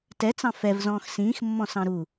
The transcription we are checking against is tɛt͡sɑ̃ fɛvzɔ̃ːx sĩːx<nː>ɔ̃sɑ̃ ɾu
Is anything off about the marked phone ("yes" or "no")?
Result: yes